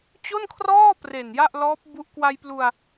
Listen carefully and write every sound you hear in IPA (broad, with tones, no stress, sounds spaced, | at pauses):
t͡ɕ o˥˩ n kʰ r ɔː˥˩ p r e˨˩ n j a˥˩ ʔ l ɔː˦˥ p̚ b u˦˥ ʔ k w a˧ j p l u˧ a̯